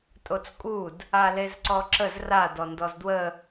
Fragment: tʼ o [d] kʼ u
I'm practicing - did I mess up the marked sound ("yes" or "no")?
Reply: yes